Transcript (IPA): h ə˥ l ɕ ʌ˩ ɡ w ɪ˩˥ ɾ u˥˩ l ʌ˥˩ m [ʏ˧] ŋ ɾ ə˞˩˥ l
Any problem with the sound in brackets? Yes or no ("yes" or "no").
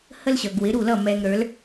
yes